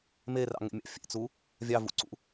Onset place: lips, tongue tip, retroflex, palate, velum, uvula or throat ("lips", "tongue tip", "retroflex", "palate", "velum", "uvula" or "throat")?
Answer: lips